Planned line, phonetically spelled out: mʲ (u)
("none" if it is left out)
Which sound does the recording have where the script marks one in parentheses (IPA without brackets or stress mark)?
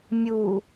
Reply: u